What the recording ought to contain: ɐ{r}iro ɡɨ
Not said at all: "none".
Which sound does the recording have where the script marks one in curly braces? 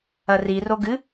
r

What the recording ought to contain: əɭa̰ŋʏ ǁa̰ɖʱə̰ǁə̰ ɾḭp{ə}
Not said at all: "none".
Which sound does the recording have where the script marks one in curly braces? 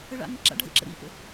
ə̰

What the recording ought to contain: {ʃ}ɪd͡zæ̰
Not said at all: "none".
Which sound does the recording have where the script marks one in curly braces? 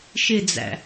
ʃ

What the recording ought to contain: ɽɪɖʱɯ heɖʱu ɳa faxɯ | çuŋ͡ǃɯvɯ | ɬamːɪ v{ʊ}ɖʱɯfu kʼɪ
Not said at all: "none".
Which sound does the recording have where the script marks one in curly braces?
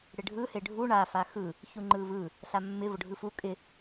ʊ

